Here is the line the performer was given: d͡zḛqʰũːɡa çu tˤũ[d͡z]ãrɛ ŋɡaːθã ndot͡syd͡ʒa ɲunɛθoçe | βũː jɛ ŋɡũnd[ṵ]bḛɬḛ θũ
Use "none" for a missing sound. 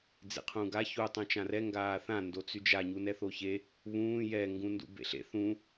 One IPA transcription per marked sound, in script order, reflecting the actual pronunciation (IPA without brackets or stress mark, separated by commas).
t͡ʃ, ṵ